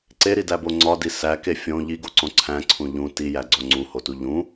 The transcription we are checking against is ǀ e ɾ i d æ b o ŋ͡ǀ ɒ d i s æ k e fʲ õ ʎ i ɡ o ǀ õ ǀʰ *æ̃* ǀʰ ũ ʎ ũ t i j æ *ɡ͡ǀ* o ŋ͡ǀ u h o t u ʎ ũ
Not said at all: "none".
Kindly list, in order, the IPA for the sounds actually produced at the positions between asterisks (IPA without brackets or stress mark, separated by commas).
æ̃, ɡ͡ǀ